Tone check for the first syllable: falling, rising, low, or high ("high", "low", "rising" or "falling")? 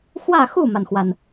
falling